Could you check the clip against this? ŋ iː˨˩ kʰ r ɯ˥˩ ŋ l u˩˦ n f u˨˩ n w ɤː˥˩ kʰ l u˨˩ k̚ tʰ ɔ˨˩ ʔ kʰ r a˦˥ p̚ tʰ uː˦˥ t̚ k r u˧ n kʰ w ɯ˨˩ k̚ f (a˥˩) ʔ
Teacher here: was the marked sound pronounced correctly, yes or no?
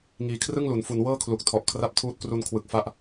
no